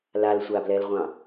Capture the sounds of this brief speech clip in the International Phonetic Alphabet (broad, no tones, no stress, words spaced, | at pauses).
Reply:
lalsʷablɛlʁʷɑ̃